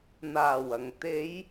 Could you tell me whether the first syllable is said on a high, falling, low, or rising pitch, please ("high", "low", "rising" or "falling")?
low